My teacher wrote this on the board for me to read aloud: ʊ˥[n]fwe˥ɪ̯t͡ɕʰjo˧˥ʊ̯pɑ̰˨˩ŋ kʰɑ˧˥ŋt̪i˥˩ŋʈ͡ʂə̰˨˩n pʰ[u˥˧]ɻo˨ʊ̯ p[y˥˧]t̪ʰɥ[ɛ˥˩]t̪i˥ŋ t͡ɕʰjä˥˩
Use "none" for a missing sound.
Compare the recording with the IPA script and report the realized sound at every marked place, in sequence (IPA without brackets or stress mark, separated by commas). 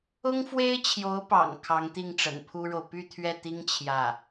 ŋ, u˥, y˥˧, ɛ˥˩